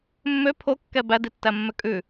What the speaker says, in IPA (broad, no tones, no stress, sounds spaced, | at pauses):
mː ø pʰ o kː ɛ b æ d i tː æ mː ø kʼ ʉ